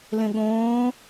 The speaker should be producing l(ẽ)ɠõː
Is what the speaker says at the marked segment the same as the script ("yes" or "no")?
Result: yes